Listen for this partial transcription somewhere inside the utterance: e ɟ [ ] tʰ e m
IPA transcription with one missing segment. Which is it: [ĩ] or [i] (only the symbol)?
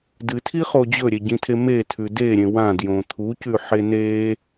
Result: ĩ